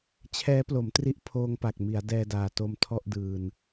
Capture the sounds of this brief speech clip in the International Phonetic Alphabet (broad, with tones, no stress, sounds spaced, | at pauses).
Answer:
t͡ɕʰ ɛː˦˥ p l o˩˦ m t r i˦˥ ʔ pʰ oː˧ ŋ p a˨˩ k̚ m i˩˦ a̯ d ɛː˧ d aː˨˩ t o˧ m tʰ ɔ˥˩ ʔ d ɯː˧ n